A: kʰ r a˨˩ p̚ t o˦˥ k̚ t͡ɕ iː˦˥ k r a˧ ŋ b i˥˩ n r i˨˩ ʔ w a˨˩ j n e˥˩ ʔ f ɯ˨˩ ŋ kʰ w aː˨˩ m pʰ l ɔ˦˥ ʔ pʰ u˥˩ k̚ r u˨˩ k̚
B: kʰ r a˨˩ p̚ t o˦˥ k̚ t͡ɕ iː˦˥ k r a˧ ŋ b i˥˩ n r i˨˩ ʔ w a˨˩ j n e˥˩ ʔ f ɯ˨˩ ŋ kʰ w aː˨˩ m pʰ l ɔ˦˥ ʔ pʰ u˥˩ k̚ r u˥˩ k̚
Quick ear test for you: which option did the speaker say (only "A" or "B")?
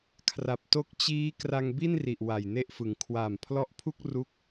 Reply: B